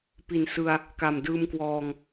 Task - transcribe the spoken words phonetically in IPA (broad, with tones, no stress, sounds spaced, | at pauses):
p i˨˩ n s ɯ˧ a̯ | k a˨˩ m d ɯː˧ m k w ɔː˧ ŋ